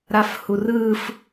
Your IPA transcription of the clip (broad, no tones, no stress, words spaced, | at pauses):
ɾafhurɯf